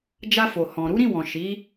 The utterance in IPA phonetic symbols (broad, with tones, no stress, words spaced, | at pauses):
d͡ʒa˧fo˨hɔ̃˨ ɾu˨˦ɾĩ˦˨wɔ̃˨ ʃi˨˦